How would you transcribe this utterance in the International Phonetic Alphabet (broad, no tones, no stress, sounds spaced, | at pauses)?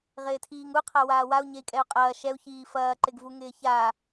ʁ ɪː tʰ iː ŋ u qʰ a w aː w a u̯ ɲ e i̯ kʼ ɛ u̯ qʼ ɐː ʃ ɛ u̯ ç iː f ɐː ǃ ɪ ɡ v u ŋ ɪː ç a